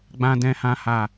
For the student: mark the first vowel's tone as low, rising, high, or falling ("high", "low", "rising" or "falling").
high